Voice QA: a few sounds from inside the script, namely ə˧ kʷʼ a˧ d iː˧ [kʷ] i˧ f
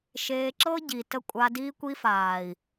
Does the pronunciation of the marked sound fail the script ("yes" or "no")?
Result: no